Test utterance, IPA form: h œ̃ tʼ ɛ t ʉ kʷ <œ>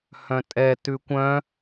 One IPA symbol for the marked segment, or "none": œ̃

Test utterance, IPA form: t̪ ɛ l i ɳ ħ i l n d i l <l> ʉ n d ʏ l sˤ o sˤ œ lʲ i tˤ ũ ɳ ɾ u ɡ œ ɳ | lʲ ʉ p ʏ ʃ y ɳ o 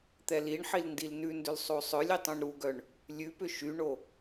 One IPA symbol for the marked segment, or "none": n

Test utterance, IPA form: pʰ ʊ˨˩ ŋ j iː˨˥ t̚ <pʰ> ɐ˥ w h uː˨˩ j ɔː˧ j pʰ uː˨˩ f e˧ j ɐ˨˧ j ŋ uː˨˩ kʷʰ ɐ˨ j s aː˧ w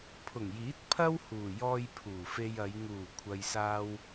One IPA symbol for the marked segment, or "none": pʰ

